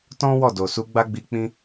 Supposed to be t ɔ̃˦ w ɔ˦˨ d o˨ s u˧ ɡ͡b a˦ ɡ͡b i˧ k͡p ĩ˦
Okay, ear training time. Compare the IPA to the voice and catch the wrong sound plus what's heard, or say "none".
none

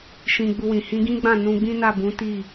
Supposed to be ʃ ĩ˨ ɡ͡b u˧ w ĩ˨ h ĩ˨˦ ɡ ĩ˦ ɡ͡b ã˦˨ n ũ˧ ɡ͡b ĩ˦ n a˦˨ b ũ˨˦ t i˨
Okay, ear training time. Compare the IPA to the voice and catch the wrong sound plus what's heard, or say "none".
i˨ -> i˦˨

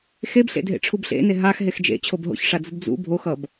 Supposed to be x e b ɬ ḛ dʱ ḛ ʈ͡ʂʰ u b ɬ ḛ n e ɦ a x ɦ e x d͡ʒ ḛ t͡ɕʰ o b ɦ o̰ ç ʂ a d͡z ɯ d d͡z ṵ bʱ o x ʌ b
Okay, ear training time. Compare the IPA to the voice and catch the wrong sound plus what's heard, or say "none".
none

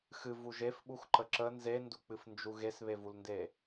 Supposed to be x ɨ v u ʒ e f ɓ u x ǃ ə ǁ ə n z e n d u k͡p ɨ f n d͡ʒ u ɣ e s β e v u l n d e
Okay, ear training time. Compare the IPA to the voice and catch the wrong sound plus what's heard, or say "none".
none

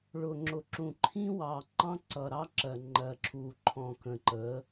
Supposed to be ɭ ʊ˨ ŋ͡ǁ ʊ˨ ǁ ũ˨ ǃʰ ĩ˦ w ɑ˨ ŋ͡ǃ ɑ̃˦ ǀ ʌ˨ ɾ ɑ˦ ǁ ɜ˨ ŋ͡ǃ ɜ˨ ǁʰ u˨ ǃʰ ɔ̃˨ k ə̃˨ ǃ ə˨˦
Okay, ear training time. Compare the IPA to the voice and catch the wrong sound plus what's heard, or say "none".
none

